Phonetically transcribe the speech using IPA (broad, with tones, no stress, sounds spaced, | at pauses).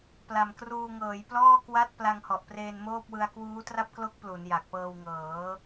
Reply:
p l a˨˩ m k r uː˧ ŋ ɤː˩˦ j p l ɔː˥˩ k w a˥˩ t̚ p l a˧ ŋ h ɔ˨˩ ʔ p r eː˧ n m oː˥˩ p̚ w ɯ˧ a̯ k w uː˦˥ t r a˥˩ p̚ k l o˦˥ k̚ p l u˩˦ n j a˨˩ k̚ p ɤː˧ w ŋ ɤː˩˦